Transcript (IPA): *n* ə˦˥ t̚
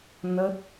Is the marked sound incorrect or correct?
correct